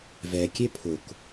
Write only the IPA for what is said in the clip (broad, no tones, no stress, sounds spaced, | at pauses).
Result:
v ɛ kʲ e pʰ ʊ k